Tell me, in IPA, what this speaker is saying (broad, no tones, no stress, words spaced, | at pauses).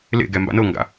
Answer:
lḛɡɛ mba̰nɤŋɡa̰